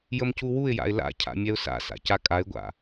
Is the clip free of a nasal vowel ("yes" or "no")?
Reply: yes